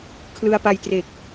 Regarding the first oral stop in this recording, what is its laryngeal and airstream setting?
aspirated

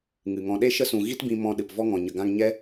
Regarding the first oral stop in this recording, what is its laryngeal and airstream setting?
implosive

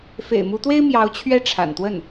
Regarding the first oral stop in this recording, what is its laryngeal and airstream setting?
plain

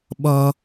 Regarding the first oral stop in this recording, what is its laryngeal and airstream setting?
implosive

